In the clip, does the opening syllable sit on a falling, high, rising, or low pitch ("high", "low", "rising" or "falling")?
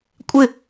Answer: falling